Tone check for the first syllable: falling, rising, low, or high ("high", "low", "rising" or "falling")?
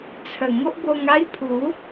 low